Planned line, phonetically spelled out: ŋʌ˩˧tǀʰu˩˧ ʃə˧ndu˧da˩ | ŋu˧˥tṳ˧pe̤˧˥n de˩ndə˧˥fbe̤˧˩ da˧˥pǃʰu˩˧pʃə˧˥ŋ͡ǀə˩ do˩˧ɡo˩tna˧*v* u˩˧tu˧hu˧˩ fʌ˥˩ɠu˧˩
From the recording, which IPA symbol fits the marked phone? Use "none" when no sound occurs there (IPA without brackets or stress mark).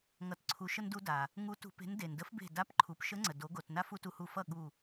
f